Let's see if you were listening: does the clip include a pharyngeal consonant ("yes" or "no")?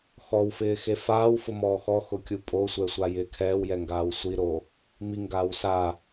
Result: no